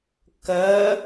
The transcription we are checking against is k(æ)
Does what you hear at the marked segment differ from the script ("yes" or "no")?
yes